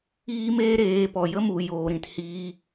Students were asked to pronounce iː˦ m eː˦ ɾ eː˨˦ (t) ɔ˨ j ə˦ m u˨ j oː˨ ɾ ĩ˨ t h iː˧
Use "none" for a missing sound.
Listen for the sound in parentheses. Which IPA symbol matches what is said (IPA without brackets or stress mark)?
p